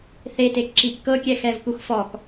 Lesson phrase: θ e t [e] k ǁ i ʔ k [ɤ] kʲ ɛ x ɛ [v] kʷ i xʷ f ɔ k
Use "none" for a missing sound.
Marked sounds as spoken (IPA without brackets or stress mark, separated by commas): e, ɤ, v